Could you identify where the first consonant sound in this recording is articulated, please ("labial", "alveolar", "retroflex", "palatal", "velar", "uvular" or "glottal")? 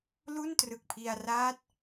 alveolar